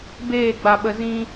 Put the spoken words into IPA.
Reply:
b eː˦˨ ɡ͡b a˨ ɓ ə˨ z ĩ˧

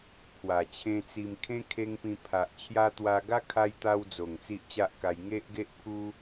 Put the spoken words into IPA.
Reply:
pʰ w a˨˩ t͡ɕʰ ẽ˧ t͡s i˧ m kʰ ẽ˦ kʰ e˧ ŋ p ĩ˧ pʰ a˨ ʔ t͡ɕʰ j a˧ t̪ w a˧ ɡ a˦ kʰ a˧ j t̪ a˧ w d͡z o˨˩ ŋ t͡s i˦ ʔ t͡ɕ a˦ ʔ k a˧ j ŋ e˦ ʔ ɡ e˦ ʔ pʰ u˦

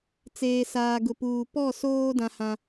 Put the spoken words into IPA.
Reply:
t͡s eː˨ s aː˨ ɡ ʊ˨ p uː˨ p ɔ˦˨ s oː˦ d ã˦ h ã˨

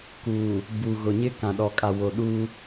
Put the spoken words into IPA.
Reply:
k uː˨ | b u˨ ɣ ʊ˨ ɲ ɪ˦ k ã˨ ɗ ɔ˨ kʼ a˨ w o˨ ɗ uː˦

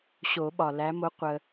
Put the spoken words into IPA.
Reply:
ɕ o˨˩˦ ɓ ɒ˩ l æ˨˦ m o˨˦ qʷ ə˩

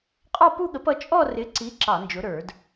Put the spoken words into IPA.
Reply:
qʼ ɔ˥˧ p u˥˧ ɠ ə˨˥ p ʌ˨˥ t͡ʃʼ ɔ˥˧ r ɪ˨˥ ǀ i˨˥ ǁ ɑ˧˩˧ n d͡ʒ ʊ˨˥ ɾ ə˞˧˩˧ d

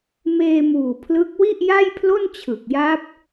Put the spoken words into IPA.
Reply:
m eː˧ m uː˨˩ pʰ l ɯ˦˥ k̚ w i˥˩ ʔ j a˥˩ j pʰ l o˥˩ n t͡ɕʰ ɯ˨˩ k̚ j a˦˥ p̚

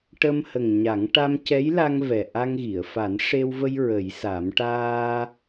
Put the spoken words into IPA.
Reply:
ʈ ə˧ m h ə˨˩ ŋ ɲ a˨˩˦ ŋ ʈ a˧ m c ɛ˧˥ j l a˧ ŋ v ɛ˨˩ ʔ a˧ ŋ ɣ i˨˩˨ ə̯ f a˨˩˦ n ʂ e˧ w v ə˧ j ɹ ə˨˩˦ j s a˨˩˦ m ʈ aː˧

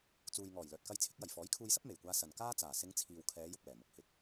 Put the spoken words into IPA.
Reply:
t͡s uː˨ j ŋ ɔː˨˩ j l œː˨ t̚ k ɐ˧ j t͡sʰ ɪ˨˥ k̚ j ɐ˨˩ j f ɔː˨˥ j kʰ uː˧ j s ɐ˥ p̚ m e˨˩ j kʷ aː˧ s ɐ˨ n k aː˥ t͡s aː˨˩ s ɪ˨˧ ŋ t͡sʰ iː˨ w kʰ ɛː˨˧ j ʊ˧ k̚ w ɛː˨˩ m ʊ˧ k̚ h ɪ˨ k̚

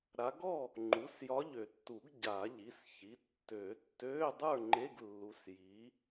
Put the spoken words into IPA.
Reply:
ɾ a˨˦ ɡ ɔ˥˨ | ŋ͡ǃ u˩˧˩ s j ɒ˨˦ ʎ ø˨˩˦ tː u˨˩˦ ɡ ɟ a˨˩˦ ʎ i˩˧˩ s ç i˩˧˩ tː ø˨˩˦ tː øː˧˥˧ dˤ ə˞˥˨ ŋ͡ǃ e˧˥˧ ɡ lː u˨˦ s j i˨˦

